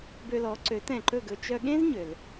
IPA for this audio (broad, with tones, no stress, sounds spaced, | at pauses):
b ø˧ l ɔ˩˥ ǀ ø˩˥ t ɛ̃˩ ǃ ɵ˥˩ ɡ ɵ˧ t͡ʃ œ˧ ɠ ẽ˥ z ɲ ø˩ l